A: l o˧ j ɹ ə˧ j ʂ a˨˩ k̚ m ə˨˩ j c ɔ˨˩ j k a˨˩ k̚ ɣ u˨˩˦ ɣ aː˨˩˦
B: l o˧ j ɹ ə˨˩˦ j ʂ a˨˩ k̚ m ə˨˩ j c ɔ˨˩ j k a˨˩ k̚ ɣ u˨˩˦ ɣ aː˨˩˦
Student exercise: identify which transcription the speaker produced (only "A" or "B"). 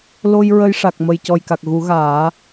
A